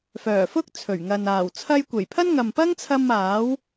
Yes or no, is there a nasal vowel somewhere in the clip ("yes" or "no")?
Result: no